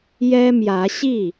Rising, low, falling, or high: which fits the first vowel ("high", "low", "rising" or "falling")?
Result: high